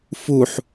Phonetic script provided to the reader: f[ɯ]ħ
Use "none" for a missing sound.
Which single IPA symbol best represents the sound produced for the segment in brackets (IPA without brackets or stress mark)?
u